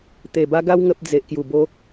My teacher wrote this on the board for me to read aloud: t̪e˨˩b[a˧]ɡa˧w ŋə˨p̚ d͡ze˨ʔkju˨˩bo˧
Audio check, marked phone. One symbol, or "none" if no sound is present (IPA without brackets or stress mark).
a˧